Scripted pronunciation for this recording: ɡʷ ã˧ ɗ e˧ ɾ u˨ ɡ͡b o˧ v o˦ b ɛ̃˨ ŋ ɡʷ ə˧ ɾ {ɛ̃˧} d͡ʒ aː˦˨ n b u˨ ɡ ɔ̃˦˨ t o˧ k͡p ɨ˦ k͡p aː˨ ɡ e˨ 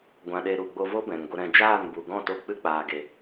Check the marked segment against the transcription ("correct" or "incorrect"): correct